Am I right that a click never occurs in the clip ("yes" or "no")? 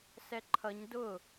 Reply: no